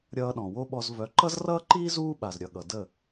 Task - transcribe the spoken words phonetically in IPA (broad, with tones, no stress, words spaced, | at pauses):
ɾʲʌː˧ɗɔ̃˩ wo˥ɓɔ˧z vœ˩˥ǃʌ˥zrʌː˥ǃiː˥ zuː˥ɓa˩zɾʲʌ˩ ɠʌ˩də˥˩